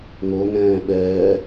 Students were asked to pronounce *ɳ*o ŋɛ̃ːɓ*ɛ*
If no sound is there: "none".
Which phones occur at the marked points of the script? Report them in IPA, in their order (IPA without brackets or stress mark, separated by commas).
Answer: ŋ, ɛː